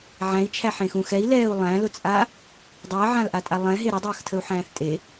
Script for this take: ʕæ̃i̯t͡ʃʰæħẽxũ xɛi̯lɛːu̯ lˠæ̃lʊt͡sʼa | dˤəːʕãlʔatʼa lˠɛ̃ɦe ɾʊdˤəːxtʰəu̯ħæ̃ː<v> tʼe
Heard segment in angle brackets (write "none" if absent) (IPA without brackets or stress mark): θ